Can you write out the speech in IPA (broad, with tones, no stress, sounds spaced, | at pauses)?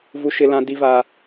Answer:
v u˦ ʃ ɪ˦ l ã˦ d i˦ v aː˦